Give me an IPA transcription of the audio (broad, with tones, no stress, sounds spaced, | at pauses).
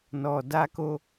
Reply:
n ɔ˨ d a˧ k o˧